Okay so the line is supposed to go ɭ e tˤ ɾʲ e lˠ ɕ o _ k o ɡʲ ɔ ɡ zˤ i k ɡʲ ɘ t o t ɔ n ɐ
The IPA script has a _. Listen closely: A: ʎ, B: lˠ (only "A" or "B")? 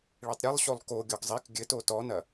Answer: B